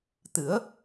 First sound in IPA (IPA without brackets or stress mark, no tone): t̪